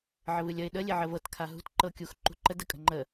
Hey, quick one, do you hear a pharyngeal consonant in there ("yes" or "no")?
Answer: yes